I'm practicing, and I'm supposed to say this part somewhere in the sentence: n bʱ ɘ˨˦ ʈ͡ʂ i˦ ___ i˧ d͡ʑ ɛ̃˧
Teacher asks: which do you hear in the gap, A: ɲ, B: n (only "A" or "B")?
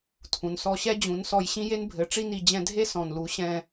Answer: B